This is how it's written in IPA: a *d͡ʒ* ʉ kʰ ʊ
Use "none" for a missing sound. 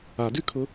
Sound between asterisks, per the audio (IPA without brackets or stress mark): d